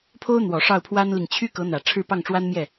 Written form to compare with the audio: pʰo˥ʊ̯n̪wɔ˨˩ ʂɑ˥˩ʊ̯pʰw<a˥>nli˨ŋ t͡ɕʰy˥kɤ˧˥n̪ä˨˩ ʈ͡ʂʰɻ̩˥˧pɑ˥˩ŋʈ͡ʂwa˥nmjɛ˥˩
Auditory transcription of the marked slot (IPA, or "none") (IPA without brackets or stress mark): a˥